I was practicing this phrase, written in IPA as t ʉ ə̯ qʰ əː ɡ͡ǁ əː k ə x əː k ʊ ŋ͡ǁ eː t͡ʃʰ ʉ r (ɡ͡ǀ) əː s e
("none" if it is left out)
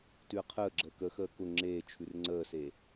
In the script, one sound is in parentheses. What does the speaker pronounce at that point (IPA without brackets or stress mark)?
ŋ͡ǀ